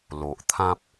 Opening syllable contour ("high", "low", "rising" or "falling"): low